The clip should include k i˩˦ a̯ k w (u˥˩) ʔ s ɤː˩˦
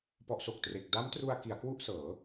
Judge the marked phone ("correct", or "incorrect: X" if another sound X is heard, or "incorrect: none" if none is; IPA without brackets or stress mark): correct